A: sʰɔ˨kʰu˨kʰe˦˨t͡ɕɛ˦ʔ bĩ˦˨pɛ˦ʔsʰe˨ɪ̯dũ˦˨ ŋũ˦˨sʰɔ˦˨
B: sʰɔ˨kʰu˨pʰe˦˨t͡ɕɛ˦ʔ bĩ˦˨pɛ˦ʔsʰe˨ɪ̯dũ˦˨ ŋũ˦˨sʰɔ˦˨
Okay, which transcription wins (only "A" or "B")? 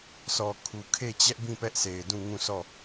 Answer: A